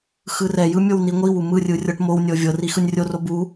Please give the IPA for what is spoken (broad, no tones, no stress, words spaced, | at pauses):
xɯrɛjɯ mʲowniŋʷiwu mɯrʲɯ rʲɤʈmownʲɤ vʲɤri xɯnʲrʲoro bu